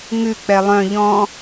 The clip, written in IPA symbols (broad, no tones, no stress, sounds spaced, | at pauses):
ŋ ʉ k͡p ɛ lˠ œ̃ ʎ ɔ̃